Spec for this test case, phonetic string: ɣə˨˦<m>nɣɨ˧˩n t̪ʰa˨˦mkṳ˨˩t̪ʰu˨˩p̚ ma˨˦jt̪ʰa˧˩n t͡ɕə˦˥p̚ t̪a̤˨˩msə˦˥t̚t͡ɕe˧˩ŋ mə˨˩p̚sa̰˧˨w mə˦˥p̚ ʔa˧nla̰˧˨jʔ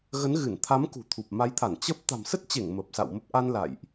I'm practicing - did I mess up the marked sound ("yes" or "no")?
yes